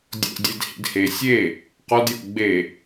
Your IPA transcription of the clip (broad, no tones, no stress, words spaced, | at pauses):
dʲo̰dʲed hḭdhe sʲe | qɔdjo̰ ɡ͡be